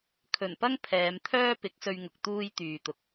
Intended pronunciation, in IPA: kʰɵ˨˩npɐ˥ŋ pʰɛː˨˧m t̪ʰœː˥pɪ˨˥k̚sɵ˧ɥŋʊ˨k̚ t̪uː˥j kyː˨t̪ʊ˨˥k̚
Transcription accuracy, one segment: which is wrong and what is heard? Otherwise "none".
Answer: k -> t̪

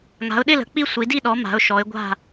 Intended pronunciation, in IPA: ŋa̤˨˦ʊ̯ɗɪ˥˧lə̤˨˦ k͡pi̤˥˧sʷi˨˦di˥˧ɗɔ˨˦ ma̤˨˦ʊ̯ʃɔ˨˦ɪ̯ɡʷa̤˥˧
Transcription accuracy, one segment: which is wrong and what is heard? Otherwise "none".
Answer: i̤˥˧ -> i˥˧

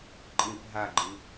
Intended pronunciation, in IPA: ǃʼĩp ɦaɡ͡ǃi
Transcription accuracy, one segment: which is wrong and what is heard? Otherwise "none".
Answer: none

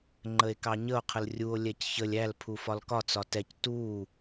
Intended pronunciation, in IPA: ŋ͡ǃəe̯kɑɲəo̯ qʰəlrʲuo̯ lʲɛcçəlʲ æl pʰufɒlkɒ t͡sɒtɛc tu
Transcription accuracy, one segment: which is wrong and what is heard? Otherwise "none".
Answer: none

